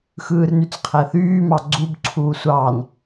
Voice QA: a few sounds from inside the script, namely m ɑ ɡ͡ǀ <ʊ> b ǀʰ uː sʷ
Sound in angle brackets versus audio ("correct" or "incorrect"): incorrect